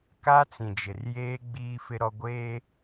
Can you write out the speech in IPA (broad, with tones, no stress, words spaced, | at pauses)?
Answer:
ka˦t͡sĩ˨d͡ʒɪ˨rjeː˦ ɡ͡biː˦fɪ˦ɾɔ˦ ɡʷeː˦